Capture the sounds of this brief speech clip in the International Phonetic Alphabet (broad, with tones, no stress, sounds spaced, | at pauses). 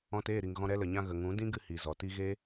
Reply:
ɔ̃˧ t eː˦˨ ɾ i˨ ŋ ɣ ɔ̃˧ ɾ ɛ˧ l ə˨ ɲ ã˧ ɣ ə˨ ŋ ũ˨˦ d ĩ˦ ɡ ɨ˦ h i˨ z ɔ˨ t i˧ ɣ e˦